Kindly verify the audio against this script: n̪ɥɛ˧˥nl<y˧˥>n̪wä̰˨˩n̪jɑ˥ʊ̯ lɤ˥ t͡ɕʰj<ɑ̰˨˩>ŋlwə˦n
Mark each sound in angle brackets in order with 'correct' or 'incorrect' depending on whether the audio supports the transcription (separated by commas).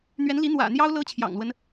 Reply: incorrect, correct